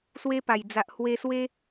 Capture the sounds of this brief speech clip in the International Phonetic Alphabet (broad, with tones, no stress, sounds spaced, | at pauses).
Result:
s w e˦ p a˨˩ j d͡z a˨ ʔ h w e˧ s w e˦